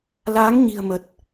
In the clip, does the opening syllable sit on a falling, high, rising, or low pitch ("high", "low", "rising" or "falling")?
rising